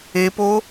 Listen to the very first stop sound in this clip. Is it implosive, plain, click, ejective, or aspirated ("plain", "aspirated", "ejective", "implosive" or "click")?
plain